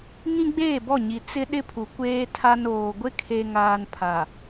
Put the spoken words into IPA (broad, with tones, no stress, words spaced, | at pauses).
ŋĩ˦ɡ͡beː˦˨bɔ˦˨ɲi˨ t͡sɪ˦ ɗɪ˦pʰu˨ kʷeː˦tʰa˦noː˨ ɡʷɪ˦kʰe˨ŋaː˨n pʰa˨